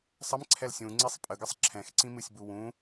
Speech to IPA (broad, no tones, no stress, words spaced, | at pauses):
sˤəm ǀʰɛlsʲũ ŋ͡ǀisˤpʼəɡəsˤ ǁʰɛ̃xǀĩmɨsʲ buwũ